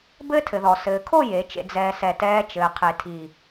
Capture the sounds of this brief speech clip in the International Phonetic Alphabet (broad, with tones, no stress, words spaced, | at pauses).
bɘː˦tʰɘ˨ðɔ˨ sɘː˨kʰo˦˨ je˨˦t͡ʃḛ˧ d͡zɛː˨sɛ˨ tɛː˧t͡ʃɘː˨ qʰe˨tʰi˨